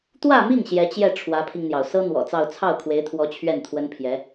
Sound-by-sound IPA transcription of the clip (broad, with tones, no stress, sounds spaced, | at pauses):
t̪ w ä˥˧ m i˥˩ ŋ ɕ j ɛ˧˥ t͡ɕ j ɛ˥˩ ʈ͡ʂʰ w ä˧˥ pʰ i˧ ŋ n̪ j ɑ˩ ʊ̯ s ɤ˥ n̪ w ɔ̰˨˩ t͡s ɑ˥˧ ʊ̯ t͡sʰ ɑ˥˩ ʊ̯ kʰ w e˧˥ ɪ̯ t̪ʰ w ɔ˧˥ t͡ɕʰ ɥ ɛ˥˩ n t̪ʰ w ə˥ n pʰ j ɛ˧˥